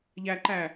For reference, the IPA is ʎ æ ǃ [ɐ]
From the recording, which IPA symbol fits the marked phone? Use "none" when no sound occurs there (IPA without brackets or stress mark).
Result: æ